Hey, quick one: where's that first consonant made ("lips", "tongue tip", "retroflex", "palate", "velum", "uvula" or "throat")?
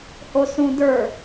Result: throat